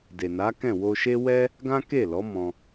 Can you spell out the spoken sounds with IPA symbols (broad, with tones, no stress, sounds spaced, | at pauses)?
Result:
d e˨ n a˨˦ k ɛ̃˦˨ w o˧ ʃ e˦ w ɛ˦ | ɡ ã˦ k e˦˨ l ɔ˨˦ m ɔ̃˧